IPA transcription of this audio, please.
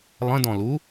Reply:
lˠ ə̃ d ɔ̃ l u

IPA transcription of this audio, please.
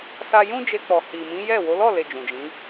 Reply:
s a˧ j ũ˦ d͡ʒ e˧ k͡p ɔ˨ h i˨ m ĩ˨˦ j ɛ˦˨ w o˨˦ l ɔ˦˨ l e˨ d͡ʒ ũ˨ d͡ʒ ĩ˨˦

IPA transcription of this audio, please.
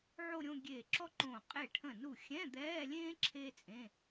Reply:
ʕ o˥˧ ɾʲ õ˥˧ ɡʲ eː˧˩ ǁ ɔ˥ ǃ õ˧˩ qʼ e˧˩ ʈʰ ə̃˧˩ n u˧˩ xʲ ɛ̃˧˥˧ d̪ ɛː˧˥˧ lʲ ẽː˥ ǁʰ eː˥ t͡sʼ ẽ˧˥˧

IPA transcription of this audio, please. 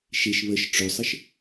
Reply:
ʃ e ʃ β ə ʃ ʈ͡ʂ ɵ sˤ ə ʃ

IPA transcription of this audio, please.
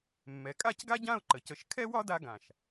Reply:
mː ɛ˩˧ kʼ a˥˧ c ɡ a˥ ɟ ã˥˧ ʊ̯ ǃ ə˩˧ c ə˧˩ ʃ kʰ ɛ˥ w ɒ˥ d a˥ ɡ ã˧˩ ʃ

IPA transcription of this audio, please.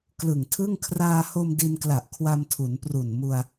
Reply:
k l ɯ˨˩ ŋ tʰ ɯ˥˩ ŋ kʰ r aː˧ h o˧ m d i˧ n k l a˨˩ ʔ kʰ w a˧ m tʰ u˩˦ n p r u˨˩ n m u˧ a̯

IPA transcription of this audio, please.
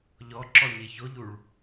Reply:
ʎ ɔ ǁ ɔ ɲ e ç o ʎ u ɭ

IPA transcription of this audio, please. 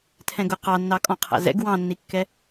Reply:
tʰ ɛ̃ ɡ ʊ q ɑ nː ɑ kʼ ɔ̃ qʰ æ̰ z ɛ̰ ɡ w ɑ̃ nː i kː ɛ

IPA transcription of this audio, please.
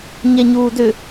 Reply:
ɲ ɛ ɲ uː d ʏ

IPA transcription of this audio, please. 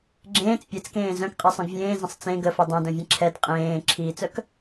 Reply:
ɡ͡ǁ ẽː t͡s pʲ ɛ t͡s k ẽː z œ̃ k qʼ ɛ sˤ œ̃ ɡ vʲ ẽː z ə̃ sˤ t͡s ẽ ɡ ə f œ dˤ œ̃ d œ̃ vʲ ẽ ǁʰ ɛ d qʼ ẽː ǁʰ iː t͡s œ k

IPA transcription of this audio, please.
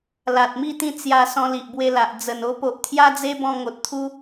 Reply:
l a˨ t̚ m i˥˧ t̪ ĩ˥˧ t͡s j a˧ s ɔ̃˧ l i˨ ʔ b w e˧ l a˨ ʔ d͡z ə˨˩ n o˧ p o˨ ʔ t̪ʰ j a˦ d͡z e˦ b ɔ̃˧ ŋ o˨ t̚ t̪ʰ u˦

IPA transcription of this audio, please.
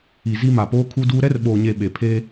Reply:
i˨ z i˦ m a˨ p oː˦ kʰ u˦ d uː˦ ɾ ɛ˦ r ɓ oː˨ ɲ e˨ ɓ e˨ pʰ eː˦

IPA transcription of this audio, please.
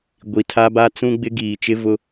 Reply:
ɡʷ i˨ tʰ a˦ b a˦ t͡s ũ˦ ɡ͡b ɪ˦ ɡ iː˨ t͡ʃ ɪ˦ v ʊ˦

